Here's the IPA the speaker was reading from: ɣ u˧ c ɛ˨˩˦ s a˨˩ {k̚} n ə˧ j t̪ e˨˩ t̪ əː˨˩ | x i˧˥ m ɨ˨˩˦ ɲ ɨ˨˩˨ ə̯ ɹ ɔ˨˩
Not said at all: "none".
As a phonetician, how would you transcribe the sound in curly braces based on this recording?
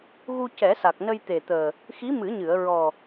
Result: k̚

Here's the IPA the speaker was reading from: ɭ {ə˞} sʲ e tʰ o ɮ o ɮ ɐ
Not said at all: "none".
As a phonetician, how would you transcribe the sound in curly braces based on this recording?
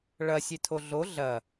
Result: ɐ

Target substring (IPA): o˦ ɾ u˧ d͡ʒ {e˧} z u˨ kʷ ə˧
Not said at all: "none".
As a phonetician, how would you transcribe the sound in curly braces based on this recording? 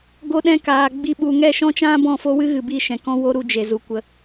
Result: e˨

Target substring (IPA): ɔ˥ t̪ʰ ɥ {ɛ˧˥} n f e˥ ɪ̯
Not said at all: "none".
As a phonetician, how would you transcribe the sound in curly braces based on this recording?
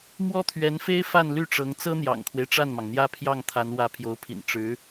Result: ɛ˧˥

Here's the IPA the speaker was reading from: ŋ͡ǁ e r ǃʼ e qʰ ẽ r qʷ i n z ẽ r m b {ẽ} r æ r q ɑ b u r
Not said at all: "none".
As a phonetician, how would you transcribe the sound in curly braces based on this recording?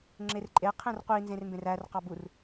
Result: ẽ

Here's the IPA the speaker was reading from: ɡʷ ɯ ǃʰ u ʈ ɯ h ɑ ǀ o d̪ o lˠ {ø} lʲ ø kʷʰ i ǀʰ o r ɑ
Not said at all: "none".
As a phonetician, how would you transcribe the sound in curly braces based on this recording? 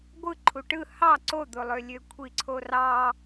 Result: ø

